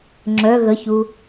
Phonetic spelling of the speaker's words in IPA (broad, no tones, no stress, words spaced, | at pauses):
ŋ͡ǁœ ɣəçu